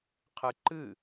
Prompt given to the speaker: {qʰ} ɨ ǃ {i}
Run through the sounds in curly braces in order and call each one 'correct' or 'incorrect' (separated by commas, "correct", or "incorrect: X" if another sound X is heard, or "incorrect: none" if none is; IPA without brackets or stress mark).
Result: correct, incorrect: ɨ